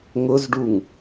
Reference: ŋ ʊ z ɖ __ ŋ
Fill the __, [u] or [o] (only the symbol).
u